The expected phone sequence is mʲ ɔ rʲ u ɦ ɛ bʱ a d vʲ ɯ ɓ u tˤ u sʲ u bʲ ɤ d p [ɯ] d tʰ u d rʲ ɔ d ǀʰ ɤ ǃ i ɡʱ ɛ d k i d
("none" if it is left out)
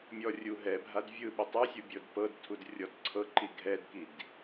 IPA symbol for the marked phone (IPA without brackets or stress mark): ɤ